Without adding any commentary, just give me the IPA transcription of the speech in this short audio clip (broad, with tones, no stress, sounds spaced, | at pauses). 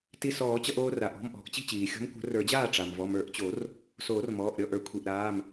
t i˧ s ɔː˨˩˦ t͡ɕ ʌ˧ ʔ oː˧ r a˩ ʔ ɔ̤˩˧˩ m ʔ ɔ̤˨˩˦ ʔ t͡ɕ i̤˥˩ t͡ɕ iː˩ xʲ ɔ̤˧˥ m kʷ ə̤˨˩˦ r ə˞˨˩˦ d͡ʑ aː˥˩ ʈ͡ʂ a˩ m v ɔ˩˧˩ m ə˞˨˩˦ ʔ t͡ɕ o˨˩˦ r | s oː˨˩˦ r m ɔː˩˧˩ ʔ ɾʲ ɔ˥˩ ʔ ə˞˨˩˦ kʷʰ i˩ ʔ ɾ aː˩˧˩ m